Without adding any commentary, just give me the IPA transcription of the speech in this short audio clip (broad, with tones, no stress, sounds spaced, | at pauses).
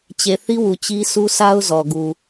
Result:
t͡ɕ e˨ θ i˦ w u˨ t͡ɕ i˦ s u˦ s a˦ ʊ̯ z ɔ˨ ɡ u˨